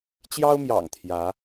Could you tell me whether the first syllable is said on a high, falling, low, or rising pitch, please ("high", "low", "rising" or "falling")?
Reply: high